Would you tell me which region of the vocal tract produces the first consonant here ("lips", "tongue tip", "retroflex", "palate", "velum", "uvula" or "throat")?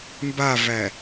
lips